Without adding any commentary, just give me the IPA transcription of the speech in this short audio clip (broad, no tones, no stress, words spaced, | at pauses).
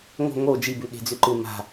ŋo̤ ŋo d͡ʒibʉ ɠe̤d͡zʉǃɨ ma̤